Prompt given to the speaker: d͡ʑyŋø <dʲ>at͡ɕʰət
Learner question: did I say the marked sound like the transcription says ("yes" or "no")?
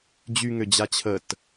no